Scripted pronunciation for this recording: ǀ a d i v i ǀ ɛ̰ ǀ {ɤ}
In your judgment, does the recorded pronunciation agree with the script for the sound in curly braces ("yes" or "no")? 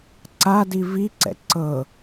yes